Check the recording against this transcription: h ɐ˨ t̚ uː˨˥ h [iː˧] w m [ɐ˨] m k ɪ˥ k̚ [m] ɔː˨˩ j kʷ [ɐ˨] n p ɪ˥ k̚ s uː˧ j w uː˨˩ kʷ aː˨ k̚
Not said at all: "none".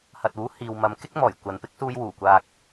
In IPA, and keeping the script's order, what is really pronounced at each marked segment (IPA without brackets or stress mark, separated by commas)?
iː˨, ɐ˨˧, m, ɐ˨